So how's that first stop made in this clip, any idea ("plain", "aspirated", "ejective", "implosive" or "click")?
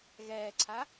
click